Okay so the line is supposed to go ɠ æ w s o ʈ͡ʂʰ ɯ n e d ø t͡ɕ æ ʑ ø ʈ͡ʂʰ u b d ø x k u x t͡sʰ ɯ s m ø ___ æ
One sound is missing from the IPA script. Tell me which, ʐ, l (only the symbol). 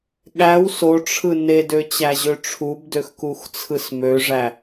ʐ